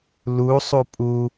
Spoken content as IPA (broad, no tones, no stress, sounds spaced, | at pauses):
l u sˤ u pʼ u